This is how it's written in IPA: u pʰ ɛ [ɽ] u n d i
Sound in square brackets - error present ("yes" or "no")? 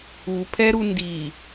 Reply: yes